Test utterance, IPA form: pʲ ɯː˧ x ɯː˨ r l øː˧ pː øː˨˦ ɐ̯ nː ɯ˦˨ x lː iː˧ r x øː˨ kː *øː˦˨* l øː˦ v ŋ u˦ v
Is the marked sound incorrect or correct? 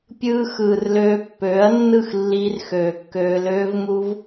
incorrect